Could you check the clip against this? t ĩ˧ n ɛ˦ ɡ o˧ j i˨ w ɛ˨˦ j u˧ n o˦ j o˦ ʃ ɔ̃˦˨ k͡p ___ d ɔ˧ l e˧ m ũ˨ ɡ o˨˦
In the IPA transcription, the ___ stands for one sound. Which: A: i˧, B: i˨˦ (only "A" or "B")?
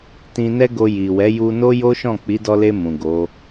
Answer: B